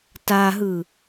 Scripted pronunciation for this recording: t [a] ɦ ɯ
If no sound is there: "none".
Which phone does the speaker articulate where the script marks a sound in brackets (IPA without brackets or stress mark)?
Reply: a